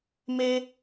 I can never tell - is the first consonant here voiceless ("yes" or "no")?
no